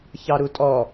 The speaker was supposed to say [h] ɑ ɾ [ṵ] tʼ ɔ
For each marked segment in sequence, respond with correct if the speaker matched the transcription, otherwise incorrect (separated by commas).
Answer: incorrect, incorrect